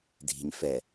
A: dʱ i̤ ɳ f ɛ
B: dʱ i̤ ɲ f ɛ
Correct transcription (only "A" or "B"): B